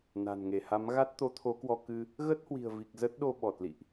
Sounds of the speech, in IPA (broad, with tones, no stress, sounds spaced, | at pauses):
n a̤˨˩ n ŋ e˧˩ h a˨˦ m ɣ a˦˥ t̚ t̪ o˨˦ t̪ʰ o˨˦ k w ɔ˧ k ɨ˧ | ɣ ə˦˥ t̚ h w i̤˨˩ ə̯ v i˨˩ k̚ z ə˦˥ t̚ ɗ o˧ ɓ ɔ˨˩ t̚ l ḭ˧˨ ʔ